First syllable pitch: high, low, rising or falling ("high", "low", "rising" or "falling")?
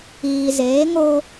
low